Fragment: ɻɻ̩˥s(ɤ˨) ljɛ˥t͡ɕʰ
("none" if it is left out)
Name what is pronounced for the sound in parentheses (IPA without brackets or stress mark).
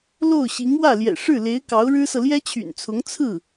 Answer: ɤ˨